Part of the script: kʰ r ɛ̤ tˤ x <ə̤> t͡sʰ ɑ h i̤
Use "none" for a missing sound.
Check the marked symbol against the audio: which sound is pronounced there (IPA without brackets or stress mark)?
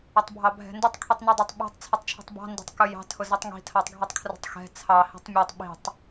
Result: ɛ̤